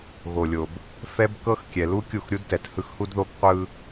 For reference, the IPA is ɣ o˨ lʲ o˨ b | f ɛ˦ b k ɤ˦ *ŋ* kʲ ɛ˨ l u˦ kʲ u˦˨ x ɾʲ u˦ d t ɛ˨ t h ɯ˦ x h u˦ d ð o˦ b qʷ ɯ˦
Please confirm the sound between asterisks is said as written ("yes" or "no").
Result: no